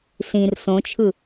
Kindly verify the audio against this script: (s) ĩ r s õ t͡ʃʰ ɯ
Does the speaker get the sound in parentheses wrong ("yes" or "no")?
no